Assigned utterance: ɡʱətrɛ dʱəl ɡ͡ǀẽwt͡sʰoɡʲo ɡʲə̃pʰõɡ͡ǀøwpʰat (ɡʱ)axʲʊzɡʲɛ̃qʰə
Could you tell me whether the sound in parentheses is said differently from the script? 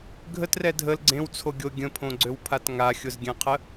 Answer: yes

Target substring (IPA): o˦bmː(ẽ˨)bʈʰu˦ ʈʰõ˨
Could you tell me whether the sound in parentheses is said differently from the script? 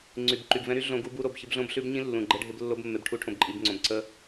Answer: yes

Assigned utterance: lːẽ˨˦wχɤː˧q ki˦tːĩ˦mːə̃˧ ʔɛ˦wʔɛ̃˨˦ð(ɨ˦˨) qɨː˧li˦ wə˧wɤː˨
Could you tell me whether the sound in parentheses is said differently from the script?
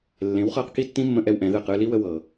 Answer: no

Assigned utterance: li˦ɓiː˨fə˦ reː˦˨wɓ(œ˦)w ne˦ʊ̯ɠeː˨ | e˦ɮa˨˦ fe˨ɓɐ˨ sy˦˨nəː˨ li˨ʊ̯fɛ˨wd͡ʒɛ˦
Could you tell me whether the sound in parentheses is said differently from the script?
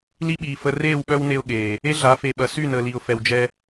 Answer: no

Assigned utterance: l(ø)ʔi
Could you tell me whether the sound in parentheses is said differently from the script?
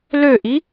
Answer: no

